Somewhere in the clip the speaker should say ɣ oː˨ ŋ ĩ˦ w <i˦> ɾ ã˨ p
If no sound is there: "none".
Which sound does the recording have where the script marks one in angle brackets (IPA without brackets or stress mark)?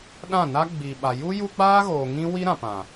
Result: i˦